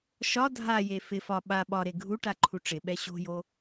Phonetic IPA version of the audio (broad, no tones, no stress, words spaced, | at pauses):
ʃɒ dʱaje fɪ fɒ ɓa ɓɒɾe ɡʱu ʈaǃʰuʈ͡ʂɪɓɛ ɕo̤jo